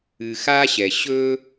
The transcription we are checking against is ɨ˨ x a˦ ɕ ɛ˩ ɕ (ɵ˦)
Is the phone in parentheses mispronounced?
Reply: no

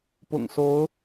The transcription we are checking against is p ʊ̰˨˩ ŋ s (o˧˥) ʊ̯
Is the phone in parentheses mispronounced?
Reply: no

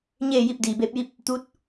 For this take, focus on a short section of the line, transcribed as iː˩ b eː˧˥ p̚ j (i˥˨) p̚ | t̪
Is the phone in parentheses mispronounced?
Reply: no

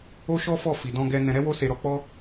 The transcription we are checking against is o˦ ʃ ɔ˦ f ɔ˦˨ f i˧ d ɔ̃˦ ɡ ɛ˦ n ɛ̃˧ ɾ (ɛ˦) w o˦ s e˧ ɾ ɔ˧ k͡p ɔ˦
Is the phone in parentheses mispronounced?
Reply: no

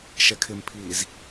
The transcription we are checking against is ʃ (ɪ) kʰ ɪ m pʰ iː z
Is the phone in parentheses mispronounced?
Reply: yes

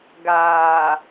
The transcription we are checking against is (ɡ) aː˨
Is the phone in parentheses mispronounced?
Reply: no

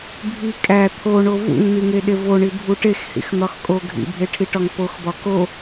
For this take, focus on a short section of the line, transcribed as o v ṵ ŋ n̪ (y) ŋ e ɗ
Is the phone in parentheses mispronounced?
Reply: yes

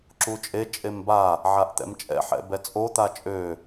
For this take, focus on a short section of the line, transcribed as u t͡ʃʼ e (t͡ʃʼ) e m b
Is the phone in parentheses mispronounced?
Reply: no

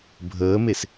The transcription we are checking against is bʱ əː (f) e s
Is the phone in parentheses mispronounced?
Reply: yes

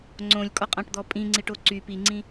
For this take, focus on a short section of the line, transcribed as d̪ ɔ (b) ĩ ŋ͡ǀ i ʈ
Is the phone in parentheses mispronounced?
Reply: yes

